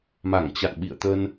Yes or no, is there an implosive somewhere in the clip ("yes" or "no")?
yes